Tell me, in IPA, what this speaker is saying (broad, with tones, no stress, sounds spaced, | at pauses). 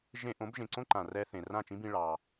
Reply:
ʒ ẽ˧ ʔ õ˩˥ b ʒ ẽ˩ ǀ õ˥ ǃ ã˩ r ɛ˧ θ ẽ˩ r ã˥˩ t͡ʃ ĩ˥ b ĩ˧ ɭ ɑ˩